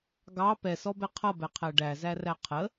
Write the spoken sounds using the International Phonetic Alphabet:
ɡ ɑ p ɛ s ɔ b ɛ qʰ ʌ b ɛ qʰ æ ɖ æ z æ r æ qʰ ə

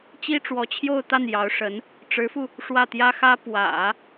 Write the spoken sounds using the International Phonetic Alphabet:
t͡ɕ i˥ ʈ͡ʂ w ɔ˧˥ t͡ɕʰ j o˥˧ ʊ̯ t̪ a˥˩ n j ɑ˧˥ ʊ̯ ʂ ə˧˥ n | ʈ͡ʂ ɻ̩˧˥ f u˧ | ʂ w ä˥˩ t̪ j ä˥ x ä˥ p w ä̰˨˩˦

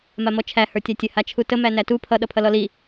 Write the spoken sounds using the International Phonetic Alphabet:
m a m ɔ t͡ʃʰ æ h ə˞ tʲ a tʲ ə h a t͡ʃʰ u t ə m æ n æ t u pʰ ʌ ɗ ʌ pʰ ʌ l ɔ l i

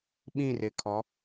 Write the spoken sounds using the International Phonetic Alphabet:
ɓ ĩ˦˨ r ɪ˨ kʰ ɔ˨˦

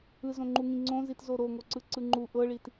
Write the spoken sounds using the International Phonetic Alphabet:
ɯ z õ ŋ͡ǃ u ŋ ĩ ŋ͡ǀ õ z i t z o ɾ o ŋ o ǀ ɯ ǀ ɯ ŋ͡ǃ u ʔ ɤ ɭ i t

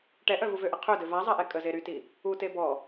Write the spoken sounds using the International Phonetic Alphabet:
ʈ ɛ ʔ œ v u v ø ʔ ə qʰ ø d ø v a zˤ ɛ ʔ ɛ kʼ ə z e ɾ y t i | u t e b ɔ

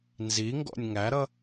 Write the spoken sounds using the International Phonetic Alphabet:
n z i ŋ ɡ ɔ̰ nʲ ŋ æ ɾ ʌ

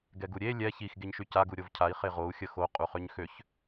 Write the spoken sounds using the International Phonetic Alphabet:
ɡ ɛ ɡ u ɾʲ e lʲ ɛ ç i x ɡ e ɲ ʃ y c a ɡ u ɾʲ o v cʰ a i̯ χ e ʁ o u̯ xʲ ə x o qʼ u χ ø ɲ x ø ç

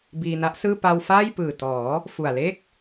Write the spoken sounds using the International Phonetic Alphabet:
b iː˧ n a˦˥ ʔ s ɯː˥˩ p a˧ w f aː˥˩ j p ɯː˨˩ t ɔː˩˦ | f u˨˩ a̯ l e˥˩ k̚

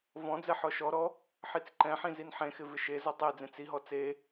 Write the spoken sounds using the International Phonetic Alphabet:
v ɔ̃ d͡z ɛ ħ ɔ ʃ ɔ ɾ ɔ | ħ i t͡s ǃ ɛ̃ ħ ĩ z i n ħ ẽ x ɪ v ɪ ʃ e z ɔ tˤ e d͡z ẽ t͡s i ɦ ɔ t͡s e

